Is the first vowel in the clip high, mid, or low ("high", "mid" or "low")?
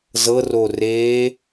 mid